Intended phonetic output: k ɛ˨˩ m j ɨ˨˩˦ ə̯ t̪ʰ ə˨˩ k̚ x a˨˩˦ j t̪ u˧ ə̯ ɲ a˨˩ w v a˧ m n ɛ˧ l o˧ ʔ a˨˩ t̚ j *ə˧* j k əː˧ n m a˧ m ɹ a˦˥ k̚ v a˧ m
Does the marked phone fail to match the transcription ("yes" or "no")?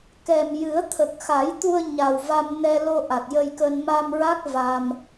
no